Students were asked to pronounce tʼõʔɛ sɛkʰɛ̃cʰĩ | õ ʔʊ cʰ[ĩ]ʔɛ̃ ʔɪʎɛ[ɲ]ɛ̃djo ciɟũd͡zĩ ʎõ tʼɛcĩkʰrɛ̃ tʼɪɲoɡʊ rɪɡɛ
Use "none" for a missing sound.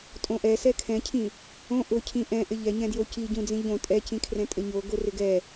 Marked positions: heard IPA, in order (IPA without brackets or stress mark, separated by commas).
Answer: ĩ, ɲ